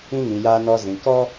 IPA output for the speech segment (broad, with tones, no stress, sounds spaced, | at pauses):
ĩ˦ ŋ ĩ˨ j aː˧ n ɔ˧ z ĩ˨ k ɔ˦